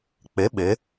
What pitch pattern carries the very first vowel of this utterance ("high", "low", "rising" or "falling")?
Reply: rising